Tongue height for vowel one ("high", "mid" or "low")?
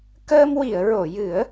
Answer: mid